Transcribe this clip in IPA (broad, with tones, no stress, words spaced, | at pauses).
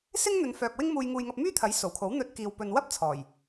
sɪ˥ŋn̪ɵ˨˧nfœː˨k̚ wɪ˥ŋmuː˧jŋuː˧jŋɐ˧p̚ myː˥t̪ʰɐ˨˥jso˨˩wkʰo˨˥w n̪ɵ˧t̚kiː˨w pɵ˨n wɐ˥p̚ t͡sʰɔː˨˩j